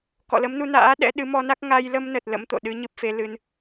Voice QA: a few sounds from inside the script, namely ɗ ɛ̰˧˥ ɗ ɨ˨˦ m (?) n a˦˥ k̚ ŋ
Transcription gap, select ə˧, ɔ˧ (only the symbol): ɔ˧